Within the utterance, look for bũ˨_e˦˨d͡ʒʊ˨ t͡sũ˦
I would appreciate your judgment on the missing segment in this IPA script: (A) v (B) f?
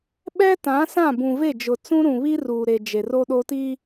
A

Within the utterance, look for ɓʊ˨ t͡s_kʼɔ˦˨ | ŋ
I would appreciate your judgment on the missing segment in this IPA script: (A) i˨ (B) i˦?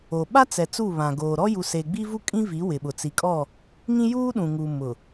A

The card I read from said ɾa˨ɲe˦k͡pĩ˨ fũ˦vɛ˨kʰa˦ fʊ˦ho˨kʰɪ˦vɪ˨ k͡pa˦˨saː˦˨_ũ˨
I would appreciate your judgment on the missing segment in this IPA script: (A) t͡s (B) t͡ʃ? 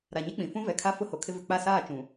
B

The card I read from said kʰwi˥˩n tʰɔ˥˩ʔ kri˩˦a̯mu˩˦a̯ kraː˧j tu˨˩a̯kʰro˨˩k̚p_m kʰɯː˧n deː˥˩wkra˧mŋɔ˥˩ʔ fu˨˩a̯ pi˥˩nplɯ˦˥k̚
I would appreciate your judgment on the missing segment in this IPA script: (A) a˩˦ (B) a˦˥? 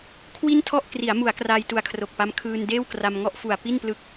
B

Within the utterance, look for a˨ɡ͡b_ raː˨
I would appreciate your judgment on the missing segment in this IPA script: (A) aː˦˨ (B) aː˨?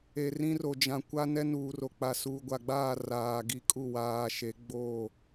A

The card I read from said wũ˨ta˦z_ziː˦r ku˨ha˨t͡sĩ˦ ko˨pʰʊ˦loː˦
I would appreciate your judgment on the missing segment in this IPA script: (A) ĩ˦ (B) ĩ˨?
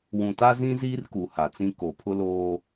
A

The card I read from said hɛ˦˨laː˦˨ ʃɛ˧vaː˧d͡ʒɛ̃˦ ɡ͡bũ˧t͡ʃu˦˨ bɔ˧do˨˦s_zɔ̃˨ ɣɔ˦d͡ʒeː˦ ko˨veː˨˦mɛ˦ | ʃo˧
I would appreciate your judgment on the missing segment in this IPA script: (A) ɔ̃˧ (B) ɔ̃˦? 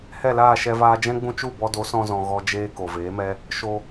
A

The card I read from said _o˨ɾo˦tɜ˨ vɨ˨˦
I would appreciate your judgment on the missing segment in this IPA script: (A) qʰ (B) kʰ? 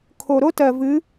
B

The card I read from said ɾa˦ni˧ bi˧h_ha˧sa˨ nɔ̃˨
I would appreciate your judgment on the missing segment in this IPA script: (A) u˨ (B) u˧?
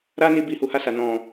A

